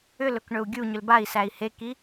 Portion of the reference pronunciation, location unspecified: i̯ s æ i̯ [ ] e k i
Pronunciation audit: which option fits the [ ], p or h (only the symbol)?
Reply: h